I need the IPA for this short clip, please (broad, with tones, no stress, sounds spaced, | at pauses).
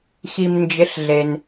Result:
x i˩ m n d͡ʒ ɪ˩˥ ɬ ɮ e˩ n